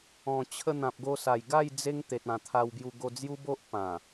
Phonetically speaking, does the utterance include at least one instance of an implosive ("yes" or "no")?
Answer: no